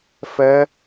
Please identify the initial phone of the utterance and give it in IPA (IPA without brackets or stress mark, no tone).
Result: f